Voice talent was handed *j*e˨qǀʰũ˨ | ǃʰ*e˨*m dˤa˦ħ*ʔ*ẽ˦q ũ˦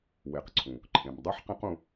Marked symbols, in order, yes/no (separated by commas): no, no, no